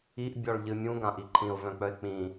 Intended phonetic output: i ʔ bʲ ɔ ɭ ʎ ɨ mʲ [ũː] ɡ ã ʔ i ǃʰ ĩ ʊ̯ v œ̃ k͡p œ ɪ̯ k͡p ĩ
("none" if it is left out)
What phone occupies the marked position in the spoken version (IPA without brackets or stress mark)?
ũ